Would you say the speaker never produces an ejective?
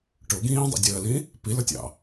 yes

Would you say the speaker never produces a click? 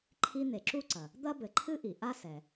no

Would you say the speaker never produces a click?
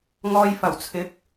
yes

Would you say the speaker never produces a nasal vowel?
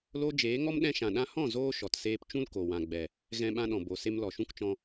no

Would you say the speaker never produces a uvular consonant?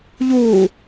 yes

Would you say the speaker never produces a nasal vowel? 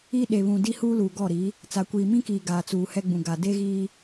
no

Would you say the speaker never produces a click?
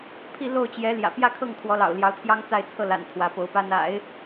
yes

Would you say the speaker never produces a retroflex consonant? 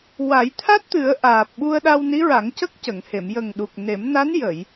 yes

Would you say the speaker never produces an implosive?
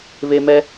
yes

